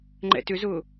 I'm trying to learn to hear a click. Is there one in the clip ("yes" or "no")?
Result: yes